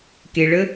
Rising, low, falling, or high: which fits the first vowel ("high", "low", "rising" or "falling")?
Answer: low